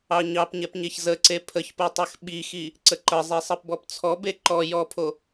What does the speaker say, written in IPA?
ɑɲɑpɲɛpɲeç zəǀe pʰəçpotˤɜx ɓixi | ǀəǃə zˤesˤɜpbɔpt͡sʰɔ beǃɔ jɔpʰo

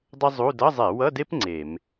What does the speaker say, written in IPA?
dˤɘ˥ zˤu˧˥˧ dʌ˧˥˧zˤe˧˩˧wʌ˧˥˧de˥p ŋ͡ǀe˧˩˧m

